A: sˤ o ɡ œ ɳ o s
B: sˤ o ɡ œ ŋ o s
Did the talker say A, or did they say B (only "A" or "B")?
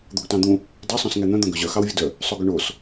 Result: A